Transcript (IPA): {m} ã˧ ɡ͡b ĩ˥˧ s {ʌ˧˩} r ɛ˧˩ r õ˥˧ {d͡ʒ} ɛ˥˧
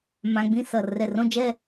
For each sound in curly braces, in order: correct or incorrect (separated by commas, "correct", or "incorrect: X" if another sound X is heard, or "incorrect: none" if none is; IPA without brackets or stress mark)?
correct, correct, correct